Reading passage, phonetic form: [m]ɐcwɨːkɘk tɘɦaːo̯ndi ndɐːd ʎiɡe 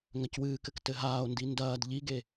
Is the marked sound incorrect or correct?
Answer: incorrect